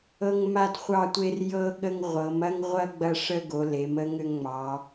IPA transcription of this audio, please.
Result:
ɤ˦ ŋ m a˦ d χʷ ɑ˦ tʷ e˦ r j ɤ˦ ɠ ə˦ ŋ ʁʷ ɤ˩˧ m ɐ˦ ŋ ʁʷ ɐ˦ ɡ͡b ɐ˦ ʂ ə˦ ɡ o˩˧ l e˩˧ m ə˦ ŋ ʏ˦ ŋ ŋ͡m ɑ˩˧

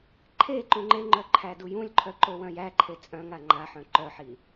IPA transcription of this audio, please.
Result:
ǃʰ e ǃ ũ ŋ͡ǃ e ŋ͡ǃ œ ǃʰ æ d u j ũ lʲ ǃʰ œ ǃ o w œ̃ j æ ǃʰ e t͡sʼ œ̃ ŋ a ŋ͡ǃ a ħ œ̃ ǃ œ ħ i

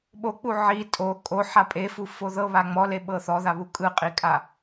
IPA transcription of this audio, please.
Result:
ɓ o k͡p u ʕ i tʼ o kʼ o ħ a pʼ e f u f o ð ɤ β a ŋ͡m ɔ l e ɓ ɤ θ ɔ ð a β u kʼ ɯ qʼ i kʼ a

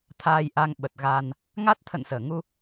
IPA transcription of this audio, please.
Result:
t̪ʰ aː˧ j ʔ a˧ ŋ ɓ ə˨˩ t̚ ɣ aː˧ n | ŋ a˦˥ t̚ t̪ʰ ə̰˧˨ n s əː˧˩ ŋ u˧

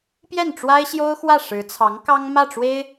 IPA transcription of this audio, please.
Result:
p j ɛ˥˩ n ʈ͡ʂ w a˥ ɪ̯ ɕ j o˥ ʊ̯ x w ä˥˩ ʂ ɻ̩˧˥ t͡sʰ ɑ˧˥ ŋ k ɑ˥ ŋ m ä˥˩ ʈ͡ʂ w e˥ ɪ̯

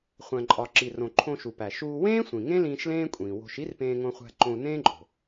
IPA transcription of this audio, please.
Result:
χʷ æ̃˩ ǃʼ ɒ˩ ǁ i˩ r õ˩ ǃʰ õ˧ ʃ u˩ p æ˩ ʃ uː˧ w ẽː˥ sʷ ĩ˩ ŋ ẽ˥ l ĩː˧ ʃ l ẽː˥ kʷʼ ĩː˩ w o̤˧ ʃ i˥ r p ẽː˧ ŋ õ˧ χʷ æ̤˧ ǃ õ˧ u̯ n ẽː˥ ǃʼ o̤˩

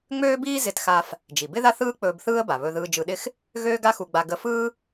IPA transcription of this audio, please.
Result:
ŋ͡m øː˥ b iː˥ z ɪ˧ t x a˧ f | d͡ʒ i˩ b ɪ˥ ð a˥ θ ɯː˥ k͡p ɵː˧ b θ ɯː˥ ə̯ b a˩ β ɵ˧ ð ɯː˧ d͡ʒ ɯ˧ ɗ ɪ˥ x | ɣ øː˥ ɡ a˥ x u˧ ɡ͡b a˧ ɡ ə˧ f ɯː˥

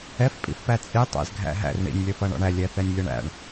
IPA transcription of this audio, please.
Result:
ɛ f pʼ ḭ f p æ t͡sʼ i tˤ æ̰ z ɡʱ æ̰ ɦ æ̰ r ɳ ḭ nʲ lʲ ʌ f ʌ ɳ ɔ̰ ɳ æ lʲ ɛ θ ɛ nʲ lʲ ʌ ɳ æ̰ ɳ

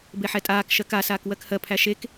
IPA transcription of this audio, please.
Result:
b e ħ ɛ tʼ aː k ʃ ɜ k a s aː k w ɜ k h ɜ pʰ æ ʃ e k

